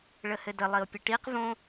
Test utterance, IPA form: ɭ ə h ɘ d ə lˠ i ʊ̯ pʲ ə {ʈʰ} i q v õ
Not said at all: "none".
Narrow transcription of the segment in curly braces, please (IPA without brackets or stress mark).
ʈ